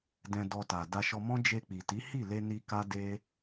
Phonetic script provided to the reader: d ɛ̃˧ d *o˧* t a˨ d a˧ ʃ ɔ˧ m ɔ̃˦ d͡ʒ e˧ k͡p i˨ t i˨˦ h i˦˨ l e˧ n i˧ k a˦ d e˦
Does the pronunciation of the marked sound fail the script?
yes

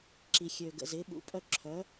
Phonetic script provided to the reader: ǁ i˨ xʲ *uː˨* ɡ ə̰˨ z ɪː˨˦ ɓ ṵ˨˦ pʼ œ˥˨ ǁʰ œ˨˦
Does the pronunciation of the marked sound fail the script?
yes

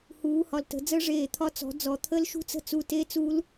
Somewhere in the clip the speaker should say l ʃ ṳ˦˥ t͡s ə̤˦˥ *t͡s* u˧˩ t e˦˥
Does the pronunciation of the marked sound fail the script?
no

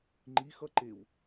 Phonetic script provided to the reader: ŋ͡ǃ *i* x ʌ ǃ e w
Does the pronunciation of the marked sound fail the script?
no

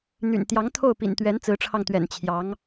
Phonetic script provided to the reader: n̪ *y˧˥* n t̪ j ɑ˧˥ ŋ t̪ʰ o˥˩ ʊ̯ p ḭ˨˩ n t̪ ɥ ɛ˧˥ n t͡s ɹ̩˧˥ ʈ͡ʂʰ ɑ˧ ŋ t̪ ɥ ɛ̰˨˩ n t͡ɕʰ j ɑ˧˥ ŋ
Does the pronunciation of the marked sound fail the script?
yes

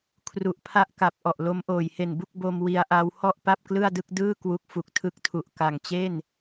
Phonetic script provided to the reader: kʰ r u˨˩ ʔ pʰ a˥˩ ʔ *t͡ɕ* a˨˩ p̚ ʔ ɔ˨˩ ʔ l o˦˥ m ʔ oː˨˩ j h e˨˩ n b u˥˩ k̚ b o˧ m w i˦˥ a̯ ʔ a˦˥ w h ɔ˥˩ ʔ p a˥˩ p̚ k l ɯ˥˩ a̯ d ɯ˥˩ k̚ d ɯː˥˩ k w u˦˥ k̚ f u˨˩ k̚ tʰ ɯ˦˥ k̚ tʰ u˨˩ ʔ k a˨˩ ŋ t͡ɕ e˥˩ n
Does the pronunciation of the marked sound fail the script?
yes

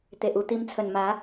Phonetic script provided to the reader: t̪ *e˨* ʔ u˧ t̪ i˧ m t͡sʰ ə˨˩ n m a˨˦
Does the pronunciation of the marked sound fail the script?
no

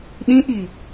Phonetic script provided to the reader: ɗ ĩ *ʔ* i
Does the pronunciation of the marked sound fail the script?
no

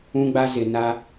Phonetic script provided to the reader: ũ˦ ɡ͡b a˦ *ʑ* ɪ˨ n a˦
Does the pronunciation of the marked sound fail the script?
yes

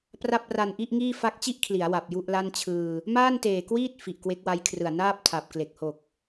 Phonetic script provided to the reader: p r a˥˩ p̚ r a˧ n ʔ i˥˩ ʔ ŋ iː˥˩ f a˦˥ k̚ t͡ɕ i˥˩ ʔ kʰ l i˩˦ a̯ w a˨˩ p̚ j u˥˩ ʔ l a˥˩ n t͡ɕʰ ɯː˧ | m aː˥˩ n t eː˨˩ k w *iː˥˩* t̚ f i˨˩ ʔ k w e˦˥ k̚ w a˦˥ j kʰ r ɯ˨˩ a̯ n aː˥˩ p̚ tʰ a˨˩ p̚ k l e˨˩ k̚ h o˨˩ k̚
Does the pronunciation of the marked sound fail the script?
no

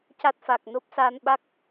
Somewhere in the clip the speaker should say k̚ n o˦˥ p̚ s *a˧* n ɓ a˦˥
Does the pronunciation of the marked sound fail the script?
no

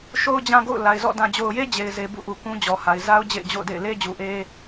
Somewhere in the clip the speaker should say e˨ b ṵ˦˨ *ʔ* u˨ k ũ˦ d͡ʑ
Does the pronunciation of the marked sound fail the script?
no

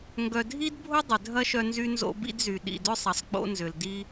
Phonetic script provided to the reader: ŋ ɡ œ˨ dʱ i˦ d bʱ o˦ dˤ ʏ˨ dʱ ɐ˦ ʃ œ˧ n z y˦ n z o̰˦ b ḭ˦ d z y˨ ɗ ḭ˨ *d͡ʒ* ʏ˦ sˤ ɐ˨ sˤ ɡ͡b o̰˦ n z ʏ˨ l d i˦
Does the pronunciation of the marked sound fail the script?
yes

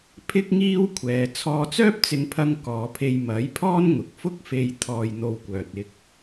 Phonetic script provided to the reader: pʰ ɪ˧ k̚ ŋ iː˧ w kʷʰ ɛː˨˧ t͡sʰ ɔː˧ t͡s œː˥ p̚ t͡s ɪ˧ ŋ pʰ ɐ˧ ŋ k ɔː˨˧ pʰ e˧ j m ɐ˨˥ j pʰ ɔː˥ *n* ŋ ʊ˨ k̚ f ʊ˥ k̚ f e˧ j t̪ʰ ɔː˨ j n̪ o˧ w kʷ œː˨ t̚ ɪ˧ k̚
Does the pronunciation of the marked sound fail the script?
no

